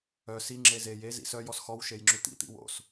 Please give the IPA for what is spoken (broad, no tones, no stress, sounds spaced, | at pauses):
œ s i ŋ͡ǁ e z e j e z ḭ s œ j ɔ s x ɔ w ʃ e j ŋ͡ǁ ʉ t̪ ḭ t̪ ḭ w o̰ s